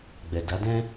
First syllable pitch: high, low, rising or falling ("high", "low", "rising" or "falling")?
low